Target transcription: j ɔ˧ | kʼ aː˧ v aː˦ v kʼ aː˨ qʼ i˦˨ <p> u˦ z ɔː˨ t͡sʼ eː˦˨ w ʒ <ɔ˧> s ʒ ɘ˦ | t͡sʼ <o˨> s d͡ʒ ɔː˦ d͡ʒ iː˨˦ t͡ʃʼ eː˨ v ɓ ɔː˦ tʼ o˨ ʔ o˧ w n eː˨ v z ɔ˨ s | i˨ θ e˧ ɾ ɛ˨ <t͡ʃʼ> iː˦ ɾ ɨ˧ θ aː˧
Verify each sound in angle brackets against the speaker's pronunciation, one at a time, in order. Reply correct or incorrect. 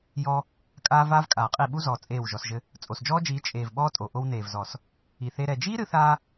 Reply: incorrect: ɓ, correct, correct, incorrect: d͡ʒ

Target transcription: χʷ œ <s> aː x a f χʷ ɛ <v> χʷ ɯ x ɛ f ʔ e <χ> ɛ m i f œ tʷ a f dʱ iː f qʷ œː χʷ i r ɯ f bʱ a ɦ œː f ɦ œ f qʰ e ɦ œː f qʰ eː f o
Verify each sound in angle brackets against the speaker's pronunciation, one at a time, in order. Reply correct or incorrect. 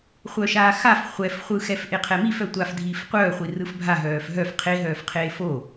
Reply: incorrect: ʃ, incorrect: f, incorrect: qʰ

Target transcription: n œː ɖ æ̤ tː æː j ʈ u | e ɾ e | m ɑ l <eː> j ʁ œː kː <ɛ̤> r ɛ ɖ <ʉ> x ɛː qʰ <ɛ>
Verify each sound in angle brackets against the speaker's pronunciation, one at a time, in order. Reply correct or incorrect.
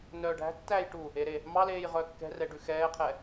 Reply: correct, correct, correct, correct

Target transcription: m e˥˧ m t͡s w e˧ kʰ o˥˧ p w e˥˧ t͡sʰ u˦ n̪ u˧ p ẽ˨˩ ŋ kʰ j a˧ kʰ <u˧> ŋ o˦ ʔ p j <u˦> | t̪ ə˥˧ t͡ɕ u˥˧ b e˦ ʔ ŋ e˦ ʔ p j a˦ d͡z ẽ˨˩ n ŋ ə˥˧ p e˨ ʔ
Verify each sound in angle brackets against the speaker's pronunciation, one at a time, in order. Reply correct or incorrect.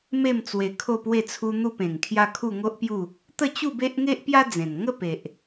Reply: incorrect: u˥˧, incorrect: u˥˧

